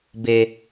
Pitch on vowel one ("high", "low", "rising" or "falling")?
low